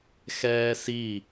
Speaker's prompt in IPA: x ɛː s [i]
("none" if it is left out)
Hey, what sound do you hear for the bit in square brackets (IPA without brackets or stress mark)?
i